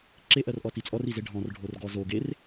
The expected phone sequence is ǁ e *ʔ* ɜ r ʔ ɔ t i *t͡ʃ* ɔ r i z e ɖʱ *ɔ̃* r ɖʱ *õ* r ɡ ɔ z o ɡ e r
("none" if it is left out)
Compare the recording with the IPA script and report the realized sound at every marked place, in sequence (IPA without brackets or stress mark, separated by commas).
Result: ʔ, t͡sʼ, ɔ̃, o